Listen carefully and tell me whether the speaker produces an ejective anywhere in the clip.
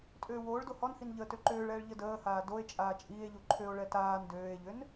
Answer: yes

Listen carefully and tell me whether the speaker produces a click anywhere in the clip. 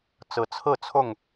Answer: no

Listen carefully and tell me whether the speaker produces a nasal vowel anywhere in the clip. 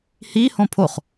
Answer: yes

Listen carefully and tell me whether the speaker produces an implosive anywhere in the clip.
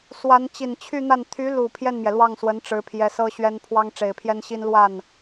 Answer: no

